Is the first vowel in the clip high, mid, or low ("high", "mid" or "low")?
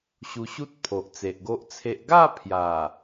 high